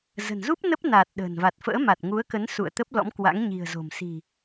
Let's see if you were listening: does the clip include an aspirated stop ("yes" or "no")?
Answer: no